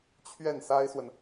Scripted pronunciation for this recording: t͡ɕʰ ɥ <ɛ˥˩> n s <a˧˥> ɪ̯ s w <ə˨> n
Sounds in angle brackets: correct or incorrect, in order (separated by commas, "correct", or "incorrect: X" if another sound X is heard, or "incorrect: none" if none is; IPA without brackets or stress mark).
correct, incorrect: a˥, correct